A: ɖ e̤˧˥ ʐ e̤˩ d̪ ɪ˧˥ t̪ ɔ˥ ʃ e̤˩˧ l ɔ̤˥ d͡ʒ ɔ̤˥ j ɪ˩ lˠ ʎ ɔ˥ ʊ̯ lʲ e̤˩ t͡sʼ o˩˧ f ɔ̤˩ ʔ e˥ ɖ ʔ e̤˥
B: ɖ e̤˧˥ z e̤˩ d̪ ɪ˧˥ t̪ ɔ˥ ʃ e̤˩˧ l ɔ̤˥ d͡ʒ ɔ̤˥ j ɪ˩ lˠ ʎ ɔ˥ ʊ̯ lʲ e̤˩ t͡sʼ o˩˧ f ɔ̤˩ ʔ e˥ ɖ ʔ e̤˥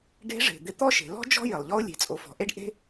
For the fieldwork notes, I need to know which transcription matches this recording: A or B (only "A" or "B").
A